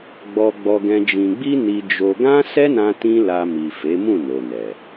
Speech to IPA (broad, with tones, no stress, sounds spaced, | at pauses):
ɡ͡b ɔ˧ ɡ͡b ɔ˧ ɡ ɛ̃˧ d͡ʒ ĩ˨ ɡ͡b i˧ n i˧ d͡ʒ o˧ ɡ ã˦ s ɛ˦ n ã˧ t ĩ˦ l a˧ m i˨ f e˨˦ m ũ˦˨ n o˨ n ɛ˨